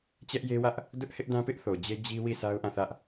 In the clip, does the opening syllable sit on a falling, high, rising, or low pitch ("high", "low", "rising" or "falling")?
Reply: high